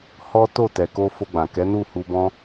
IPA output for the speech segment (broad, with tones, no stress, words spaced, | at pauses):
hɔ˦ to˦˨tɛ˨ko˧ fo˧ɡ͡bã˨ kɛ˨˦nu˦˨ hu˧bɔ̃˦